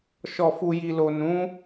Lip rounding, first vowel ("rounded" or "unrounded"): rounded